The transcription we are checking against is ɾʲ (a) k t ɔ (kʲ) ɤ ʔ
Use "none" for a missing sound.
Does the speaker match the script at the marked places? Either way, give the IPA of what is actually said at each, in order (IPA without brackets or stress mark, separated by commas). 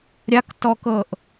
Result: a, k